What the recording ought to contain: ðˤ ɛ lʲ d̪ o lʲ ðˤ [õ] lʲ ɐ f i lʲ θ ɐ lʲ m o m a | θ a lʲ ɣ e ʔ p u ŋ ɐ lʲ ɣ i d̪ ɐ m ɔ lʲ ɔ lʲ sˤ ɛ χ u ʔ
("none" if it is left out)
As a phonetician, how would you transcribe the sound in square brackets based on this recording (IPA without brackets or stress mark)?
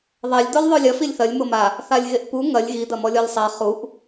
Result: o